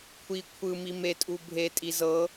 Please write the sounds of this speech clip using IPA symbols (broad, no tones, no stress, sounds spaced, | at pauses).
kʷʰ i kʷʰ ɯ m i m e tʼ u bʱ e tʼ i z ɤ